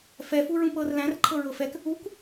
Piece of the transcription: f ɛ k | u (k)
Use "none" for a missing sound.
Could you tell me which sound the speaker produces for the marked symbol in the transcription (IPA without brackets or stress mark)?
k